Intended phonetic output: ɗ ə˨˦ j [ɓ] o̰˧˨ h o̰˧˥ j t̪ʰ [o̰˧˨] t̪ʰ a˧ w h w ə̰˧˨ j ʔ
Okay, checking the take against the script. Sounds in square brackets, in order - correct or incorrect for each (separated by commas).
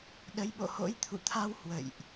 correct, incorrect